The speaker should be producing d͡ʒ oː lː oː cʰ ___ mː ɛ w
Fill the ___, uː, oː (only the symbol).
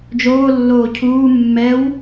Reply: uː